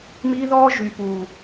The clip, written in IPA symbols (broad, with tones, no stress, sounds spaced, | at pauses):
m iː˦ ð ɔː˦ ʒ y˨ p uː˨